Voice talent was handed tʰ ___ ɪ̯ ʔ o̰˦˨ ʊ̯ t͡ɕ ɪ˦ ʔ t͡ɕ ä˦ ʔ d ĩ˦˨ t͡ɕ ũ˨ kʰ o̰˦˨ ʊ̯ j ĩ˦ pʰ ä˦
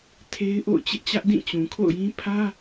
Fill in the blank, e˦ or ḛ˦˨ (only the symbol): e˦